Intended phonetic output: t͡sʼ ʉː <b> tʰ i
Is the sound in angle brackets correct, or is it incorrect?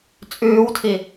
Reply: incorrect: w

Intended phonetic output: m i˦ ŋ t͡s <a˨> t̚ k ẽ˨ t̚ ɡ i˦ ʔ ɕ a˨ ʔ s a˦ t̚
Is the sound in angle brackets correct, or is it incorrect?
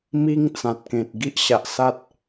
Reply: incorrect: ã˨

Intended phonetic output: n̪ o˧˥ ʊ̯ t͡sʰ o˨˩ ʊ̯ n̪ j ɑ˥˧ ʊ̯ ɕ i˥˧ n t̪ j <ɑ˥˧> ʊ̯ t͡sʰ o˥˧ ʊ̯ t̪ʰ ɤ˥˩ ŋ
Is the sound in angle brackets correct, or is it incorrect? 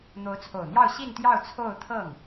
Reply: correct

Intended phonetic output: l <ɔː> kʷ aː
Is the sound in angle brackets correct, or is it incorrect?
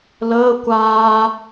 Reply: incorrect: əː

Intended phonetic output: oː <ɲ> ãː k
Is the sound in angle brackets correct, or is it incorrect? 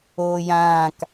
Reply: incorrect: j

